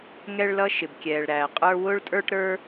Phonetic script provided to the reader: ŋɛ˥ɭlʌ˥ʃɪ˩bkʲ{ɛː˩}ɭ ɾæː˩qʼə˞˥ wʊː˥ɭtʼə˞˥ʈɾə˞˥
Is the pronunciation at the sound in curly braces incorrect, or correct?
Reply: correct